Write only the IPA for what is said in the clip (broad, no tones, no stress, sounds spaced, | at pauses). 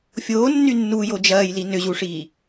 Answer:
fʲ oː nː y nː uː j o d͡ʒ ɐː j l i n ʏ ʑ u ʂ iː